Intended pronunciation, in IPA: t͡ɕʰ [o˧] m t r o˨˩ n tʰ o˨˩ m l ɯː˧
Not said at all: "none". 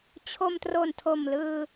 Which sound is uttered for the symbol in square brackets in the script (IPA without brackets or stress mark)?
o˧